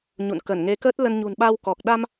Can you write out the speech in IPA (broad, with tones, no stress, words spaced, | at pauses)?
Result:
ɲṵ˧˨n kə˧˩nŋe˨˦kəː˦˥t̚ lə˧n ɲṳ˨˩nɓa˧wkɔ˨˩k̚ ɗa˧m